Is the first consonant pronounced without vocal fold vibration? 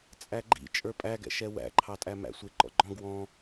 yes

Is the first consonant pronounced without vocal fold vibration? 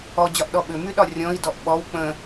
no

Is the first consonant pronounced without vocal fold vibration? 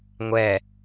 no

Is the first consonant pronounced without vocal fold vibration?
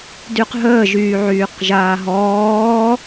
no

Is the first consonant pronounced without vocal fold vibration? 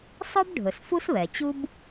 yes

